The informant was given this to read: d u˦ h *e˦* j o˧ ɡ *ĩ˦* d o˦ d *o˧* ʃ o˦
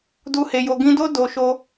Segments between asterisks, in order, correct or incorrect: incorrect: e˧, incorrect: ĩ˧, correct

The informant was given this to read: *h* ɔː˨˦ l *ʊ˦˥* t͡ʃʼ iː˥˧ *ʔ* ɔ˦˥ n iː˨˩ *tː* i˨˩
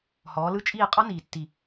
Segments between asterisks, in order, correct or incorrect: correct, incorrect: ɯ˦˥, incorrect: qʼ, correct

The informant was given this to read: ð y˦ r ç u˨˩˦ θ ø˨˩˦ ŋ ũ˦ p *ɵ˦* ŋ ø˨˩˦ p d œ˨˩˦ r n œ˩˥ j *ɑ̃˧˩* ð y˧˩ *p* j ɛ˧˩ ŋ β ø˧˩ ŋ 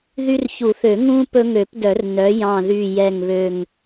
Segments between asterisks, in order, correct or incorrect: correct, correct, incorrect: none

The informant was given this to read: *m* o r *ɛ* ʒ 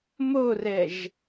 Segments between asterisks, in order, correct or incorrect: correct, correct

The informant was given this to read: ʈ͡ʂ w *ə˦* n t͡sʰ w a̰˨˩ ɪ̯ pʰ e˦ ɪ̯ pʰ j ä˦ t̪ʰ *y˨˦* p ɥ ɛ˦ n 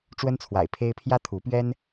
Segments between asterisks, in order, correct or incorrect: correct, incorrect: u˨˦

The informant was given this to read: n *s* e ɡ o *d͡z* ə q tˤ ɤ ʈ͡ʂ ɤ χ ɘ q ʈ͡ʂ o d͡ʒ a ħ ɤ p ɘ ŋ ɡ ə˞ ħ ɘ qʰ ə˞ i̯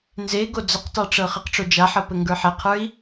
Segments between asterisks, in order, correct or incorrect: incorrect: z, correct

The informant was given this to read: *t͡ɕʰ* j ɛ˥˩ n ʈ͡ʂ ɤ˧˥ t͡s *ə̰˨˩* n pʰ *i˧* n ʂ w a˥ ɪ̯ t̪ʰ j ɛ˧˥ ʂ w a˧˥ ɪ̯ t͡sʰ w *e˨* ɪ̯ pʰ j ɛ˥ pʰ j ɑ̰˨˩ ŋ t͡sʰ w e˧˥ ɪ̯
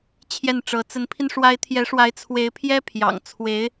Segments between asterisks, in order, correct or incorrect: correct, incorrect: ə˧˥, correct, incorrect: e˧˥

